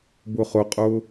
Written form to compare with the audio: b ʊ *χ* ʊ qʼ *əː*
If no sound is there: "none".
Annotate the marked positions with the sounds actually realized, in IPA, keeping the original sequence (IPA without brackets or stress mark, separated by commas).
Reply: χ, ʊː